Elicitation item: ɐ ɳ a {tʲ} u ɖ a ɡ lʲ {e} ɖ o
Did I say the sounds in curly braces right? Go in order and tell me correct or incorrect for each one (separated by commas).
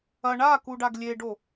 incorrect, correct